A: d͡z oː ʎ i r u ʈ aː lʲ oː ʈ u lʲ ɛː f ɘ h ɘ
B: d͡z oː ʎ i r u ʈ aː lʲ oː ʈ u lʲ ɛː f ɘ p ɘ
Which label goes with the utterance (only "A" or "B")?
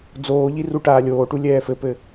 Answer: B